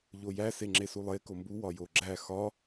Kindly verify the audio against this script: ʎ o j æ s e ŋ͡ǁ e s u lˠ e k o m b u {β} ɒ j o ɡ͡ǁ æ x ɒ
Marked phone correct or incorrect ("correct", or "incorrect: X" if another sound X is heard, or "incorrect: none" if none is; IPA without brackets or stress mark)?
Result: incorrect: w